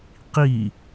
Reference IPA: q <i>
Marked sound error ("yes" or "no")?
no